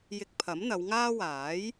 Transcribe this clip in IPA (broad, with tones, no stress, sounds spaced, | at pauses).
j ɪ˧ k̚ pʰ ɐ˨˥ m n̪ ɐ˨˧ w ŋ aː˥ w aː˨˥ j